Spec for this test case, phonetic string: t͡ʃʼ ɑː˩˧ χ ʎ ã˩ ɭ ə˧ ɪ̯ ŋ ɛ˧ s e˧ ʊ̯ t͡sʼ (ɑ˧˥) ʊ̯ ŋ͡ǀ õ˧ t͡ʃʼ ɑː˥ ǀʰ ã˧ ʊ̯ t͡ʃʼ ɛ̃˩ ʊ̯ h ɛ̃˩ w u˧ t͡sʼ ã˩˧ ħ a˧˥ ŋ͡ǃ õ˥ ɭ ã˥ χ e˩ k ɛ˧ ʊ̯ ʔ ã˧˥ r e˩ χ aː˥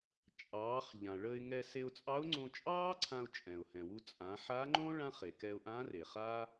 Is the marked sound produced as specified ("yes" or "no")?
yes